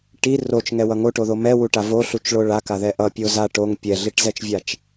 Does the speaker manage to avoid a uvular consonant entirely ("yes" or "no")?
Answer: yes